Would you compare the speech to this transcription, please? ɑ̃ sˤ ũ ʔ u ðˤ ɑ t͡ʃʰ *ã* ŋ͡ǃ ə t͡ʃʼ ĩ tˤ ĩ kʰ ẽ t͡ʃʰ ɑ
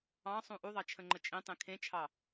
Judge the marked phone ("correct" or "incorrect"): incorrect